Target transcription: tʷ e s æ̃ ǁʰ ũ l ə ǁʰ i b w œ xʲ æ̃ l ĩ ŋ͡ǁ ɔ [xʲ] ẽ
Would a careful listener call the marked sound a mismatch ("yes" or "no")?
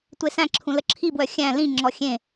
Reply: no